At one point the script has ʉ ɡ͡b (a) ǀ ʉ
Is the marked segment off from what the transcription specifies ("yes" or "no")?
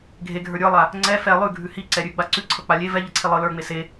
no